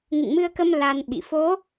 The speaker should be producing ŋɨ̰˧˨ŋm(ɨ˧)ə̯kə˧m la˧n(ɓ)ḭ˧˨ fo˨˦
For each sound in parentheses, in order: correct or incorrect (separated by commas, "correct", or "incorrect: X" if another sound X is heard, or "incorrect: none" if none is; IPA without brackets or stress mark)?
correct, correct